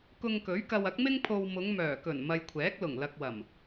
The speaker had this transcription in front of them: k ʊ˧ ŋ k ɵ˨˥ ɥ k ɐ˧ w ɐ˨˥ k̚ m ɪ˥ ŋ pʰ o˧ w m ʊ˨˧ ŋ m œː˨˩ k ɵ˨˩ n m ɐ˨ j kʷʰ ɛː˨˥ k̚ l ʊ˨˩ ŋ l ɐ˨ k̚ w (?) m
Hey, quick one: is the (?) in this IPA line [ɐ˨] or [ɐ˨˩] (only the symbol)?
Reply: ɐ˨˩